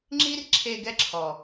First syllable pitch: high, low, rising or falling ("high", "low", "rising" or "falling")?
high